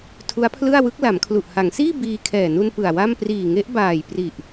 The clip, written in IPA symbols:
tʰ u˦˥ a̯ pʰ l ɯ˥˩ a̯ w ɯ˦˥ k̚ l a˩˦ m kʰ l u˨˩ ʔ h a˩˦ ŋ s iː˥˩ b iː˧ kʰ ɛː˨˩ n u˧ n p ɯ˨˩ a̯ w a˥˩ m p r iː˨˩ ŋ e˦˥ ʔ b aː˨˩ j p r i˨˩ ʔ

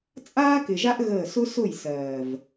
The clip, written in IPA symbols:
t͡sʼ aː˦ k ɪ˨ ʒ a˦ ʔ ɣ əː˦˨ s ʊ˦ s ʊ˦˨ j s ɜː˨ v

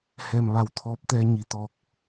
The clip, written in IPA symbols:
h ɛː˧˩ m ʋ a˧˩ w t̪ʰ ɔː˧˥ p̚ t̪ ɛː˧ ɲ i˩ t̪ ɔː˧˩ k̚

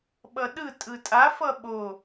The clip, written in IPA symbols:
ɓ ʌ ɗ ɯ tʼ ɯ tʼ a f ʌ ɓ o

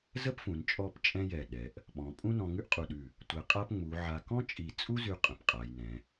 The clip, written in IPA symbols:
z ə˥ p f ũ˩˧ n t͡ʃʼ ɔ˥˧ p t͡ʃʼ ɛ̃˥ j ɛ˧˩ ɗ ɛ˩˧ ʔ | ɓ ɔ̃˩˧ pʼ ũ˥ n ɔ̃˧ ŋ ʉ˥ ʔ qʼ u˧˩ ɗ ʉ˧˩ | tʷ ɛ˧ qʼ a˥ p ŋ͡m u˩˧ ʕ a˧ k ɔ̃˥ t͡ʃʼ i˧˩ t͡sʼ u˥ z ʉ˧ qʼ ə̃˩˧ p qʼ a˩˧ j n ɛ̃˩˧

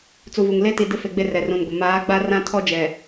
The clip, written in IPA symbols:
t͡s u˨ v u˨ ŋ l e˦ t i˨ d ɪ˦ f e˨ ɡ͡b e˦ r ɛ˨ r ũ˨ n ɡʷ ɪ˨ m aː˨˦ ɡ͡b a˦ r ã˦ tʰ ɔ˦ d͡ʒ ɛ˨

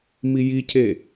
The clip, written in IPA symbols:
m i j i cʰ e

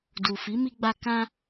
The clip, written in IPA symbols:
d u˨ f i˨˦ m i˧ ɡ͡b a˧ k ã˧

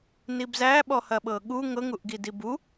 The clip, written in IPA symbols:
n i b z æ ɓ ɔ h ɐ ɓ ɤ ɠ u ŋ ɤ ŋ u ʔ ɡ i d i b u

